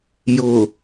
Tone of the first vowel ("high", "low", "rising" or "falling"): low